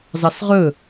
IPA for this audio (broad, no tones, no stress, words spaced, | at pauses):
zɑsʁɵ